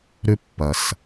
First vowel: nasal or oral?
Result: oral